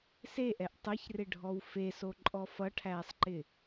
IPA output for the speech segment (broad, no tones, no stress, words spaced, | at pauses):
seʔɛʔ tˤɐçrɪɖʱɔw fesoǃʼɔ fʌʈʰæːsˤǃɪ